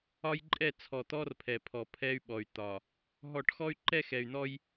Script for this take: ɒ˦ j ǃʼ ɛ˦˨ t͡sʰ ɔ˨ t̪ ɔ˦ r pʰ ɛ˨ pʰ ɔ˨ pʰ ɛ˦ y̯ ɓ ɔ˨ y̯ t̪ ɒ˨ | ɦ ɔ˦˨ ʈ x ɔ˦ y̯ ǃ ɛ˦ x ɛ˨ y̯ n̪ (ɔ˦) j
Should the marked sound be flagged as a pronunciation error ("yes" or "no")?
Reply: no